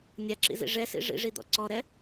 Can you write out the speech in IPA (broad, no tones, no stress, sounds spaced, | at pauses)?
nʲ a ǁ ḭ z ḭ ʐ ɛ s ḭ ʐ ḭ ʐ i d̪ ɔ̰ ǀ ɔ ɾ ɛ